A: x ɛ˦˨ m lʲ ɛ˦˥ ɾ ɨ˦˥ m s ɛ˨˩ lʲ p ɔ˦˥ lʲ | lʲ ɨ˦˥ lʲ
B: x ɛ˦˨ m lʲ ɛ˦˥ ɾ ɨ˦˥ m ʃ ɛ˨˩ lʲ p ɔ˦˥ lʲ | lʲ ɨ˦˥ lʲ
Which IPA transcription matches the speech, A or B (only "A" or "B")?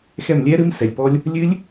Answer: A